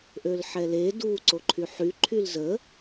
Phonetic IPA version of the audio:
ʔ ø l ħ ɛ l e d u ǀ o ǃʰ y ħ y ǃʰ y l z ə

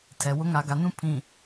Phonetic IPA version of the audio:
tʰ ɛ˨ w ʊ˦ ŋ a˨ ɡ a˨ n ũ˦ pʰ ĩ˨

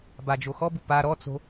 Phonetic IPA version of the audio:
b a d͡ʒ o x ɔ b u p a ɾ ɔ t͡s o̤

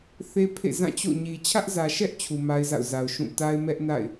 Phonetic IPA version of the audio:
θ e˦ pʰ ḛ˦˨ z ã˦˨ t͡ɕ o̰˦˨ ɲ i˨ t͡ɕʰ ä˦ ʔ z ä˨ ʃ ɛ˦ ʔ t͡ɕʰ u˨ m a˦ ɪ̯ z a̰˦˨ ʊ̯ z a˨ ʊ̯ ʃ ũ˦˨ t a˦ ɪ̯ m ɛ˦ ʔ n a̰˦˨ ɪ̯

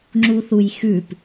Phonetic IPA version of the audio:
ŋ͡ǁ u θ u j x ʉ p

